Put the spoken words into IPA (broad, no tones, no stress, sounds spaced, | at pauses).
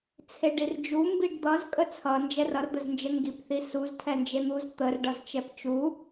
t͡sʰ e ɖ i r d͡ʒ u m b i ɖ d̪ ʌ z kʼ ə t͡sʰ ʌ n d͡ʒ ɛ r ʌ r d̪ ə z n d͡ʒ ə ŋ ɡ i p θ i s u z tʰ ɛ n d͡ʒ e n̪ u z t̪ ə r ɖ ʌ z t͡ʃ ɛ p t͡ʃ u